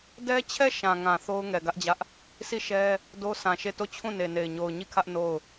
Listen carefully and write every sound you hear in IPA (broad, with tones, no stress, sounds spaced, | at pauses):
d ɛ˦ t͡ɕʰ ɛ˦˨ ʃ ã˨ ŋ ã˨ θ o˦ ʊ̯ ŋ ɛ˨ ɡ ä˦ ʔ d͡ʑ ä˦ ʔ | s i˦˨ ʃ ɛ˦ | d o˦ s ã˨ ʃ e˦˨ t o˦˨ t͡ɕʰ ũ˦˨ n e˨ n e˨ ɪ̯ ɲ o˨ ʊ̯ ɲ i˦˨ kʰ ä˦ ʔ n o˦˨ ʊ̯